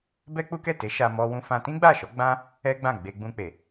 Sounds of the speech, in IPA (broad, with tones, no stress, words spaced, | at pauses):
bɛ˦k͡pu˦ kɛ˦˨te˨˦ʃa˧ mɔ˦wũ˦ fã˧ tĩ˦ɡ͡ba˦˨ʃɔ˨˦ ɡ͡bã˦ | ɛ˦ɡ͡bã˦˨ ɡ͡be˧ɡ͡bũ˧k͡pe˨